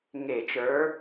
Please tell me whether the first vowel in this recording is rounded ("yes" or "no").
no